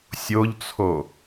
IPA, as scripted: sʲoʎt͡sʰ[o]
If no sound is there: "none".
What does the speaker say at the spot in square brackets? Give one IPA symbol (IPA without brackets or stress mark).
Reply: o